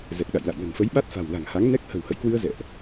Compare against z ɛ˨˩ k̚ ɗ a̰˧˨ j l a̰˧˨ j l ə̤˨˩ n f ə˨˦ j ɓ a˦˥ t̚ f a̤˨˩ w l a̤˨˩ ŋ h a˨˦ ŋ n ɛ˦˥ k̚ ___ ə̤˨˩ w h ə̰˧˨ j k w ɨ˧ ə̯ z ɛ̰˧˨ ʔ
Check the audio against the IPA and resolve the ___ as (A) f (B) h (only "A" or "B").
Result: B